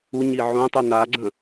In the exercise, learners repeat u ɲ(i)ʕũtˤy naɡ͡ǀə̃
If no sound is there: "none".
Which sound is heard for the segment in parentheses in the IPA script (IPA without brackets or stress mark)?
i